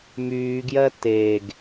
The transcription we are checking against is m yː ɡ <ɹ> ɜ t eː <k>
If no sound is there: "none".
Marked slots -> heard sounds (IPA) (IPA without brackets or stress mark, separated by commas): j, ɡ